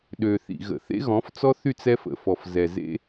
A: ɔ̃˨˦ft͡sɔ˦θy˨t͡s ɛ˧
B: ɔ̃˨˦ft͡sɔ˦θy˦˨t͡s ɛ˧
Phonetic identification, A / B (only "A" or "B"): B